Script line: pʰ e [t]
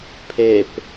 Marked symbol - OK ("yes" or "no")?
no